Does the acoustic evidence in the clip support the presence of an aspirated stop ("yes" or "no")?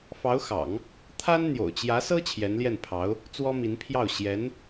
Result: yes